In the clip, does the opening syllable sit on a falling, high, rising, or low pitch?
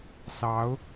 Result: rising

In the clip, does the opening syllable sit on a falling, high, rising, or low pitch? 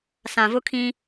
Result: low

